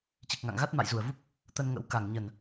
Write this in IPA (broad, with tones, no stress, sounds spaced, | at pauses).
t͡ɕ i˨˩ k̚ ŋ a̰˧˨ ŋ ɣ a˦˥ t̚ m a̰˧˨ j z u˨˩ ə̯ v u˦˥ p̚ | t̪ ə˧ n ŋ ə̰˧˥ w k a˨˩ ŋ ɲ ə˨˩ n